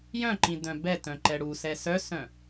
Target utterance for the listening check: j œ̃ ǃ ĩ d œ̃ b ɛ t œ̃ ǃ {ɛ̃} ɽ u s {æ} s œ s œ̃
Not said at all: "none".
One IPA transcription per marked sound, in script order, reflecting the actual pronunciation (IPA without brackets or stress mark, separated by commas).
ɛ, ɛ